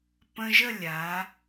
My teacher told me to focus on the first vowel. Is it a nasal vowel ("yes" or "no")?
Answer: yes